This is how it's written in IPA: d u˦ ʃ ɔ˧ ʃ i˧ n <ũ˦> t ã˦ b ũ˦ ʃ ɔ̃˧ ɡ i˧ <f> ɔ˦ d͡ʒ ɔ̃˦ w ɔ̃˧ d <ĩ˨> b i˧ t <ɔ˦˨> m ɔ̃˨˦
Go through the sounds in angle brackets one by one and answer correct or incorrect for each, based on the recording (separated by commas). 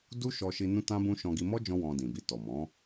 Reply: correct, incorrect, correct, incorrect